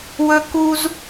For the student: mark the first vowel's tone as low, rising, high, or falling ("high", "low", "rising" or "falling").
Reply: high